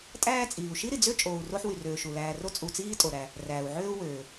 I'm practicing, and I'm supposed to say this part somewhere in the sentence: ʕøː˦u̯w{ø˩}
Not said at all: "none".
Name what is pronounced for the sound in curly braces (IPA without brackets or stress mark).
øː˩